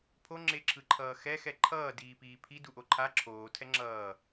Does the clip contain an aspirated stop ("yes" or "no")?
yes